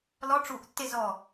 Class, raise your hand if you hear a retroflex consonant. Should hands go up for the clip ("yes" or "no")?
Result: yes